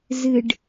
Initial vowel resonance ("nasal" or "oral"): oral